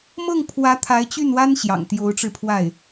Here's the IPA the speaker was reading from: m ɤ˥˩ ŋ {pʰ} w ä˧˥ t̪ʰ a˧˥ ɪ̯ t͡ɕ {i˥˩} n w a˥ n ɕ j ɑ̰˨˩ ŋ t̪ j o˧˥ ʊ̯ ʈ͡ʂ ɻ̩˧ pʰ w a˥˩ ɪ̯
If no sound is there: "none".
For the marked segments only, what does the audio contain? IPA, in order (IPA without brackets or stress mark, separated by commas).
pʰ, y˥˩